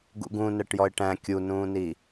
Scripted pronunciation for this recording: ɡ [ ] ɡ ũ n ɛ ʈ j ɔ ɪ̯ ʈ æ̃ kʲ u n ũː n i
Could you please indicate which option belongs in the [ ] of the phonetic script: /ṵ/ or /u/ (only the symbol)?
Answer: ṵ